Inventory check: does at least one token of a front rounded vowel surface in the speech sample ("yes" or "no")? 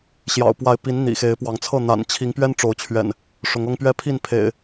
no